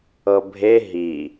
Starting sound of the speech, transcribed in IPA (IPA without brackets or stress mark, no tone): ɤ